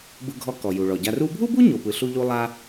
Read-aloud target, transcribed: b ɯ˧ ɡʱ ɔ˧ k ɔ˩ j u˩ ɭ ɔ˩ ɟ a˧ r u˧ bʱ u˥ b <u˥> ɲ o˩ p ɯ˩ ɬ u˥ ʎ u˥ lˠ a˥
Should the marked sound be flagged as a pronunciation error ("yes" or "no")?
no